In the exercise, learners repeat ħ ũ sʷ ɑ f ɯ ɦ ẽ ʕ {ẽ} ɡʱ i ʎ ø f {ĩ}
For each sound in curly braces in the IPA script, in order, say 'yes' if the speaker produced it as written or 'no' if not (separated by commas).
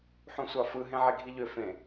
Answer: no, no